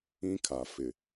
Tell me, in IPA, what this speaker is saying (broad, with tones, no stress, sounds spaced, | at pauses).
ĩ˦ kʰ a˨ f ɪ˨